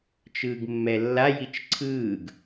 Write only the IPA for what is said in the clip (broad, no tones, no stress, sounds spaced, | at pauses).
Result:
t͡ʃ ɯː ɡ mː ɛ lː a j i t͡ʃ ǀʰ ɯː ɡ